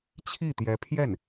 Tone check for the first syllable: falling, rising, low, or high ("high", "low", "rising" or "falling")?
falling